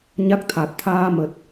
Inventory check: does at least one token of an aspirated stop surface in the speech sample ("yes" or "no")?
yes